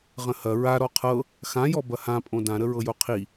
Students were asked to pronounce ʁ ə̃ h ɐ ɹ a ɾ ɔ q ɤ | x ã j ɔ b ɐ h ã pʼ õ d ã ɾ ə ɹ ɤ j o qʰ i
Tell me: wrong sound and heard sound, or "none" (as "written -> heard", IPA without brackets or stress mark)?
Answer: q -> qʰ